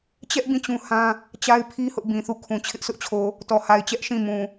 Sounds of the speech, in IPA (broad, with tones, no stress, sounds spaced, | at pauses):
t͡ɕ ɛ˦ ʔ b ĩ˦˨ t͡ɕ ũ˦ h ã˦ | t͡ɕ a˦ ɪ̯ pʰ i˦ h ʊ˦ ʔ b ĩ˨ θ u˦˨ kʰ ũ˨ t͡ɕʰ ɪ˦ ʔ s ʊ˦ ʔ t͡ɕʰ o˨ | t ɔ˨ h a˨ ɪ̯ t͡ɕ ɛ˦ ʔ ʃ ĩ˦˨ m ũ˨